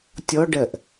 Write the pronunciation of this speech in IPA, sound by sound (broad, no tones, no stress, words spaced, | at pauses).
tʲɔɖɜʔ